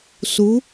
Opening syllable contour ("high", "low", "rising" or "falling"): rising